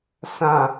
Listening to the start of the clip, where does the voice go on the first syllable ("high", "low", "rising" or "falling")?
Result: low